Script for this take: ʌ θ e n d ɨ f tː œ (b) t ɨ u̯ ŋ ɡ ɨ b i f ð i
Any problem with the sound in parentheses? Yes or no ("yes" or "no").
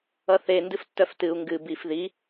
yes